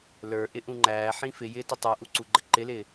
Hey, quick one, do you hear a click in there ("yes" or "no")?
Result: yes